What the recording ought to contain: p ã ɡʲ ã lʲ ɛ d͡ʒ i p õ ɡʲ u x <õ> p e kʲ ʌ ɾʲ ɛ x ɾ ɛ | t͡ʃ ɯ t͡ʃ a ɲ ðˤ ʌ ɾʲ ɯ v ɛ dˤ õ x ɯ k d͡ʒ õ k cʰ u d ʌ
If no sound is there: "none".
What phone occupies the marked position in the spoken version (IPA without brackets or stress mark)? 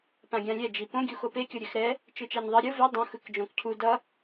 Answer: o